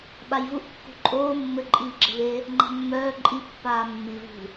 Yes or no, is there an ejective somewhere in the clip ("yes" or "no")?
yes